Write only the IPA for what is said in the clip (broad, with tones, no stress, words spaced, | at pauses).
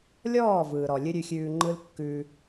lʲɔː˦˨ vɯː˨ɾɔ˨ lʲɨ˦ɾʲʉ˧xʲʉː˧ ŋ͡ǃɯ˦l kːʉː˧